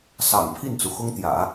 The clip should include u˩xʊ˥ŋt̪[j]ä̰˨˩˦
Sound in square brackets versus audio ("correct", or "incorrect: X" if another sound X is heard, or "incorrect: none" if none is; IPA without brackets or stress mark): correct